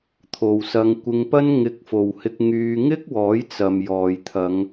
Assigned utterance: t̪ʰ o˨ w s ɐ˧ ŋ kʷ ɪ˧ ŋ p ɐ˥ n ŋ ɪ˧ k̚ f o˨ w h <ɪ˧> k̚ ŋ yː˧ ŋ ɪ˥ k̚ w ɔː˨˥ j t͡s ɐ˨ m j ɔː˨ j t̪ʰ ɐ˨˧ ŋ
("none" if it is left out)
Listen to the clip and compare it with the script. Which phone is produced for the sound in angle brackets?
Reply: ɪ˧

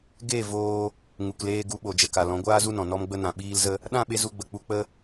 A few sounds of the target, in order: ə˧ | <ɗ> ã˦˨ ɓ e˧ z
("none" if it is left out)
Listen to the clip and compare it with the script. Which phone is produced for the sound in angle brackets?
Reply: ɗ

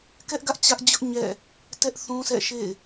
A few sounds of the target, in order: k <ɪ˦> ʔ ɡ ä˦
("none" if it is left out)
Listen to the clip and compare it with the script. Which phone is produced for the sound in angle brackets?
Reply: ɛ˦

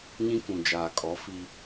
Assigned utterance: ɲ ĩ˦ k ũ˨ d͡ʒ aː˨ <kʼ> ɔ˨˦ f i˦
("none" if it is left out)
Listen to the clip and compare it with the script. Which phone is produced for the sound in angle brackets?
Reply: kʼ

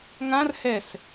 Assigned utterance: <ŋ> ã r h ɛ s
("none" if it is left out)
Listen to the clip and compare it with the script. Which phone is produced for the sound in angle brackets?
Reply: ŋ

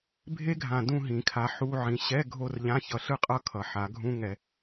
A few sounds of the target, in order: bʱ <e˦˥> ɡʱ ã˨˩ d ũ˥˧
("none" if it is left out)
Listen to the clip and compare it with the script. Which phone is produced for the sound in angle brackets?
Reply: e˦˥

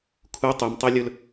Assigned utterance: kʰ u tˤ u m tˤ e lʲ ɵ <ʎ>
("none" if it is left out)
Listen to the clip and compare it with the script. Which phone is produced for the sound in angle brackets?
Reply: l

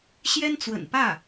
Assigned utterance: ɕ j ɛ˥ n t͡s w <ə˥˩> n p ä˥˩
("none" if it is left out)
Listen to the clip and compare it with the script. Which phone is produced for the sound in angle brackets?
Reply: ə̰˨˩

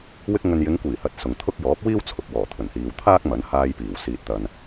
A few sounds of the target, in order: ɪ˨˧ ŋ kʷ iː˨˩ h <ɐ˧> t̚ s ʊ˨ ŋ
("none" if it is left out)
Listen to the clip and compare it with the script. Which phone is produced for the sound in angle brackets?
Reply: ɐ˨˥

